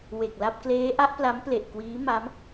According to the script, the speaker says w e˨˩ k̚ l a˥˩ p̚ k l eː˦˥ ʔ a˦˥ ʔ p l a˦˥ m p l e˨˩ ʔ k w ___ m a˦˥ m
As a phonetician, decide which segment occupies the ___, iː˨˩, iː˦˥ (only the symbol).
iː˦˥